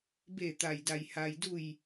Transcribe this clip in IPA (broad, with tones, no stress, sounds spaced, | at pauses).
b e˧˩ t̪ a˩ j d a˩ j h a˩ j d u˧˩ j